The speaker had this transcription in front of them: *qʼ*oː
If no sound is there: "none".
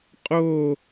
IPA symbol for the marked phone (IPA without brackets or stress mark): qʼ